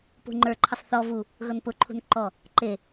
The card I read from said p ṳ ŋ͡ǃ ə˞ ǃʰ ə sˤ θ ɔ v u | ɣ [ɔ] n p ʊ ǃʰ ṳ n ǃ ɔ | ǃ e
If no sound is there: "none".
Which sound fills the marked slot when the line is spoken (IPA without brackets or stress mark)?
ɤ